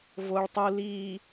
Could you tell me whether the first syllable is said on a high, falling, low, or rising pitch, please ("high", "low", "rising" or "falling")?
low